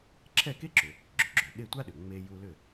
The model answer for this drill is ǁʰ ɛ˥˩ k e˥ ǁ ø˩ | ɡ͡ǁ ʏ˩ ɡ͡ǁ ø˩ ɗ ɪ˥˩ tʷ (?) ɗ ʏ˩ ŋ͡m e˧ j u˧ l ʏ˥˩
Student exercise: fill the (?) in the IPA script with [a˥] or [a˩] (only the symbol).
a˥